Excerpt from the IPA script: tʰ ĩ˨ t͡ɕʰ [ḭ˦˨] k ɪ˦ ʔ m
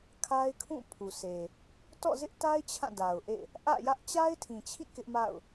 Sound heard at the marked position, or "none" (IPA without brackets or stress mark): ḭ˦˨